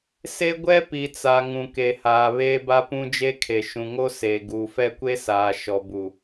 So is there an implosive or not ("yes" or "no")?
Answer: no